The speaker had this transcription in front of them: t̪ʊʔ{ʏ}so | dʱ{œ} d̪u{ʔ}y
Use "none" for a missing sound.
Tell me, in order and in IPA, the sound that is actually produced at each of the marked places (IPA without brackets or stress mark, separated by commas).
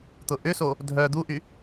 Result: ʏ, œ, ʔ